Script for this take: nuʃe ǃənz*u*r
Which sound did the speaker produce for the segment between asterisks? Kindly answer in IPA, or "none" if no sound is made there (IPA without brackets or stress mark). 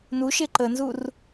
u